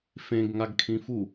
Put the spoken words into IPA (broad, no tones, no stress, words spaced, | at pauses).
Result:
fẽɡ ŋaɡkʰĩfu